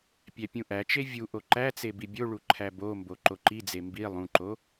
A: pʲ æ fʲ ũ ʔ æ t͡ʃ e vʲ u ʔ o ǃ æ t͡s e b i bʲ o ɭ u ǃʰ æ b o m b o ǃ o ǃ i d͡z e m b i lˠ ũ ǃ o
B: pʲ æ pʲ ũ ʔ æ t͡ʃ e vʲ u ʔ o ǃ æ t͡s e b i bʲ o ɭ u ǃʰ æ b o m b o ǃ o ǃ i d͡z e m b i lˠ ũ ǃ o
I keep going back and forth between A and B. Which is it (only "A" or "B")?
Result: B